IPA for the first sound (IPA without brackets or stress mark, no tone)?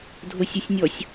dʱ